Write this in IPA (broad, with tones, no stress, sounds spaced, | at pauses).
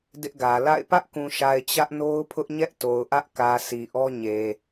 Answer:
d ɪ˦ ʔ ɡ ä˨ l a̰˦˨ ɪ̯ p ä˦ ʔ k ũ˨ ʃ a˨ ɪ̯ t͡ɕ ä˦ ʔ n o˦ ʊ̯ pʰ ʊ˦ ʔ ɲ ɛ˦ ʔ t o˨ ʊ̯ ʔ ä˦ ʔ k ä˨ sʰ i˨ ʔ ɔ˦ ɲ e˨